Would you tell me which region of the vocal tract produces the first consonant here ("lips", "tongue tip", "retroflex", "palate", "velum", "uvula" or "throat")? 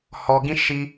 throat